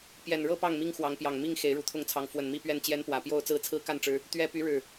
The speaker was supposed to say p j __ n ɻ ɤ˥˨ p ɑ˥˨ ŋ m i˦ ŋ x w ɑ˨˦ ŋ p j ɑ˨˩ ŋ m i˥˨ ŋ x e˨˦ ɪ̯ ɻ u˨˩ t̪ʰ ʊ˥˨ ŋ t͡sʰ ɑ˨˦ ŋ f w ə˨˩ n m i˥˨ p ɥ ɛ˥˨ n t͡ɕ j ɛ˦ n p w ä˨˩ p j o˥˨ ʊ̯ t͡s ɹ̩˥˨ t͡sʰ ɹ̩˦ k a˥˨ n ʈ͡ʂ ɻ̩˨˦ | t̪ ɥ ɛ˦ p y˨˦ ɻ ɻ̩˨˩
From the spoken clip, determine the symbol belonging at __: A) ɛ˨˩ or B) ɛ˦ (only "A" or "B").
A